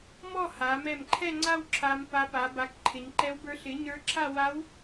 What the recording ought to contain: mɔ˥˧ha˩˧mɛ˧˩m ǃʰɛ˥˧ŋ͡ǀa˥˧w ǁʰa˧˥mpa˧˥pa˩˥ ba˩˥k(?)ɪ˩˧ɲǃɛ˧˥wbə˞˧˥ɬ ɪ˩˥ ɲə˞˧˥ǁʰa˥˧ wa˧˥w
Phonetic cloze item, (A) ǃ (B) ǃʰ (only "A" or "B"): B